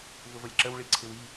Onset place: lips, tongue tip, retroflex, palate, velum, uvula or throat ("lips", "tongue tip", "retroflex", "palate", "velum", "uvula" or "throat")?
lips